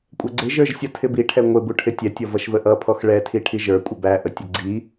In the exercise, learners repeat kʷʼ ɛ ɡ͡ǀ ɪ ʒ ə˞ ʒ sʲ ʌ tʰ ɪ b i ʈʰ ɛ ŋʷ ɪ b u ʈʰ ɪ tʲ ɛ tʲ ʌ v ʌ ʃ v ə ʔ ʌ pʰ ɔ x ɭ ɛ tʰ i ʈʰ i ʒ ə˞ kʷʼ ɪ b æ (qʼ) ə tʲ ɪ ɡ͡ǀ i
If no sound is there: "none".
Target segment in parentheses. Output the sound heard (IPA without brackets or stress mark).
ʔ